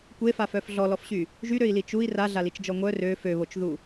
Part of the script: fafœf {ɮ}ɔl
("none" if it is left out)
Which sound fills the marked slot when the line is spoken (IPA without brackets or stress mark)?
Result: ɮ